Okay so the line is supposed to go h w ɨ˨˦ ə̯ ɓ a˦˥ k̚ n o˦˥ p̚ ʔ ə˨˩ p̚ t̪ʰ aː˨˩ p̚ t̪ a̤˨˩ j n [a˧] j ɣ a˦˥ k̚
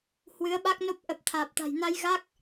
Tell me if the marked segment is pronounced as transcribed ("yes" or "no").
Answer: yes